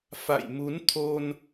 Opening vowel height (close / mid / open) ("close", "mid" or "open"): open